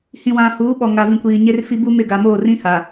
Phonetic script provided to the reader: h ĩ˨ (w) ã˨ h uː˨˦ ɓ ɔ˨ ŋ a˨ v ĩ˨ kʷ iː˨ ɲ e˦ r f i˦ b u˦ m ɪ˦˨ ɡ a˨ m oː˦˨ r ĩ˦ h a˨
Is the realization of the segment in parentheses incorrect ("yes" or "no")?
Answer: no